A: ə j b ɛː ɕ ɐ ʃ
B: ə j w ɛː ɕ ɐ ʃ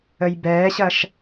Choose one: A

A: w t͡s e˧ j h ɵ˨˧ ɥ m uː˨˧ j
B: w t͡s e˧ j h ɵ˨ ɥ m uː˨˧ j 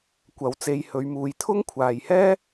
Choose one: A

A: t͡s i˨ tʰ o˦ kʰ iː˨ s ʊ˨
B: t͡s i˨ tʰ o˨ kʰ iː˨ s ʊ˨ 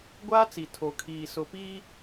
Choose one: B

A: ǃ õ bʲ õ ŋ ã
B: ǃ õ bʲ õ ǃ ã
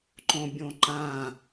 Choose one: B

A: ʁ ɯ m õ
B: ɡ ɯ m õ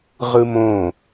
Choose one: A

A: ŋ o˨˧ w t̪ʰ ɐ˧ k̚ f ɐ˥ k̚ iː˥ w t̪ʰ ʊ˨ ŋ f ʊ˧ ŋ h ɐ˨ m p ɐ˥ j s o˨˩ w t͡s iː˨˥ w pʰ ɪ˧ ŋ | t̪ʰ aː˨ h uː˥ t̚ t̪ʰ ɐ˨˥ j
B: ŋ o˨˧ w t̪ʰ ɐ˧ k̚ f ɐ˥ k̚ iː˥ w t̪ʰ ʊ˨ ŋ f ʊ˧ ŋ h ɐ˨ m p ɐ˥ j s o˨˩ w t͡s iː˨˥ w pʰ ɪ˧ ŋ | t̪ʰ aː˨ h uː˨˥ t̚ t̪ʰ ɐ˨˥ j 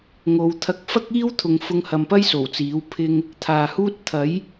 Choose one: A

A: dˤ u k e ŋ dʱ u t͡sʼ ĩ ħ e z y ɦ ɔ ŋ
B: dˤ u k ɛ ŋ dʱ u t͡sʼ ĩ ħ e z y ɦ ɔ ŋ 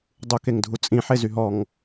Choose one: A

